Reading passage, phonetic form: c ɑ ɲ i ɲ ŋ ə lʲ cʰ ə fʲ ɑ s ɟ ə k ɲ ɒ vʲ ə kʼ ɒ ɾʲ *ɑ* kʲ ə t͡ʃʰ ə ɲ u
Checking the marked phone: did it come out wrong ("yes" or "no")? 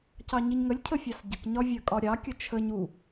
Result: no